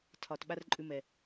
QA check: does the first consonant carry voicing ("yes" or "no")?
no